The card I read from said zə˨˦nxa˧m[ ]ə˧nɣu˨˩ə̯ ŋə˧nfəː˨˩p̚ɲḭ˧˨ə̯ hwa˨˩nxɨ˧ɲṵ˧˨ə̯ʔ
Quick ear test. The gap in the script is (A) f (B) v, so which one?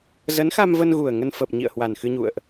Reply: B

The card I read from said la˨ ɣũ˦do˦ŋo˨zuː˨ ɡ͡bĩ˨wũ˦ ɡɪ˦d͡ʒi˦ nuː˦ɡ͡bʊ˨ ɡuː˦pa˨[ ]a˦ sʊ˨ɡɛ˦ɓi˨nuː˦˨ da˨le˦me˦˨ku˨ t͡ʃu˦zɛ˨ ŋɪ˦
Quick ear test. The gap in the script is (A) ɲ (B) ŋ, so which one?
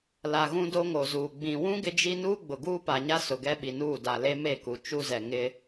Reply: A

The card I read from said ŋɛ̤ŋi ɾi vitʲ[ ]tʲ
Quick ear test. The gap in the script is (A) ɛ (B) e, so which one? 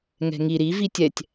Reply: A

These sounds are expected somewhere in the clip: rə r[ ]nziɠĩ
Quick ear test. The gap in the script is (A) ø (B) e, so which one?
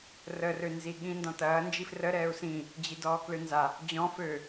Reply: A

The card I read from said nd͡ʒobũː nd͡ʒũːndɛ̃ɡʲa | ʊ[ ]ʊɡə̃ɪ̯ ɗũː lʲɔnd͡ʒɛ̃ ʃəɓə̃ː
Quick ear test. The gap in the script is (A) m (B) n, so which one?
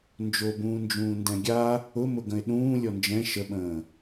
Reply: A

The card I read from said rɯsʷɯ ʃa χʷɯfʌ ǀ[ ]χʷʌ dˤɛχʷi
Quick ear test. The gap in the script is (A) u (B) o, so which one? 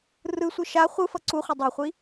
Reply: A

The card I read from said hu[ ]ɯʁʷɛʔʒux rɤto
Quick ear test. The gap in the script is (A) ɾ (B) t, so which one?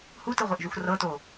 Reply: B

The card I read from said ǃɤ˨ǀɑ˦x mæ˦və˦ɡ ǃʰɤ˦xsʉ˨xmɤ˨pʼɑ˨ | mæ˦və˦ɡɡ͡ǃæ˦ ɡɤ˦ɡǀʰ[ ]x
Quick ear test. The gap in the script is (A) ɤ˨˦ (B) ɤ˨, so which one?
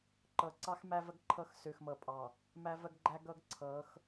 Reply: A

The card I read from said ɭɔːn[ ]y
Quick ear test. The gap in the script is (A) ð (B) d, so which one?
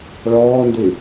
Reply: B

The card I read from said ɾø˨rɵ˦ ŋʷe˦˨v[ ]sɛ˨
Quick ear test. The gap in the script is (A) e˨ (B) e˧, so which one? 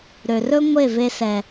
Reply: B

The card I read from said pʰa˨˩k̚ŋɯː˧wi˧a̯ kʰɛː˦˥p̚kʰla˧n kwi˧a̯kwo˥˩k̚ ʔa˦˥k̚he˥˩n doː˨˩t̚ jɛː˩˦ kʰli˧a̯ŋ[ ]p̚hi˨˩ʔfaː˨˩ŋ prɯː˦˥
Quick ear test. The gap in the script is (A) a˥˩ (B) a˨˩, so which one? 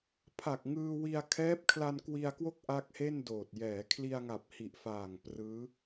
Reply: B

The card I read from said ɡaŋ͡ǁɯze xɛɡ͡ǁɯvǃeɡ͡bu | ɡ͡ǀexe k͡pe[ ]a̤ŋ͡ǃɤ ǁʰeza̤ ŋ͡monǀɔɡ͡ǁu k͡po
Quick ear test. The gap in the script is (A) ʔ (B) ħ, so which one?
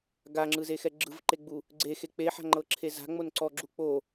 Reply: B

